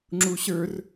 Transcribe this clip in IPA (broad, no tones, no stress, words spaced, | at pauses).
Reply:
ŋ͡ǁuɕə˞r